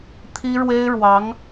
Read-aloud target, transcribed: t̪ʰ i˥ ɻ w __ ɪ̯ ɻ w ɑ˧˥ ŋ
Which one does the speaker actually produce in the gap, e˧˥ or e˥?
e˥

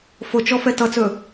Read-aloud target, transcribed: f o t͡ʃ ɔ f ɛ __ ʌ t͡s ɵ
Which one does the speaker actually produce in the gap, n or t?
t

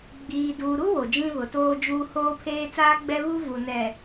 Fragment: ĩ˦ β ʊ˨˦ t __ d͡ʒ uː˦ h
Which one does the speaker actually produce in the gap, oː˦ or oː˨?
oː˦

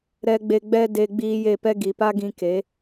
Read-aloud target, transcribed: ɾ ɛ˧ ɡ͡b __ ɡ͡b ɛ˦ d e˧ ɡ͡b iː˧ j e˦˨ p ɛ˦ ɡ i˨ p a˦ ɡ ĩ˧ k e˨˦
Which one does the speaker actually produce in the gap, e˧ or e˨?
e˧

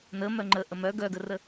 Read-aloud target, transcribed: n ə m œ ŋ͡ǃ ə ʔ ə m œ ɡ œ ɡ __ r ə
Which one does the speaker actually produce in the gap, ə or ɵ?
ə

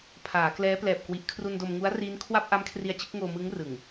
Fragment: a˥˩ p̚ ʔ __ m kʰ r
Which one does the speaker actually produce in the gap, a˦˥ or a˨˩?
a˦˥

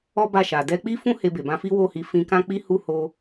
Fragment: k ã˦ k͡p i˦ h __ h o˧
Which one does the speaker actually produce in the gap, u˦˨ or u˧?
u˦˨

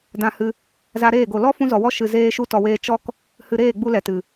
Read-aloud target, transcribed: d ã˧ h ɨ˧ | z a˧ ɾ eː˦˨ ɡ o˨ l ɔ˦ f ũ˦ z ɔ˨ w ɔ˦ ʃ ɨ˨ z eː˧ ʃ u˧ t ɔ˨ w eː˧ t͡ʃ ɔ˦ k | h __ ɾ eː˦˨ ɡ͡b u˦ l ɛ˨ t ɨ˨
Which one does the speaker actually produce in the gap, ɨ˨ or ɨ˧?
ɨ˨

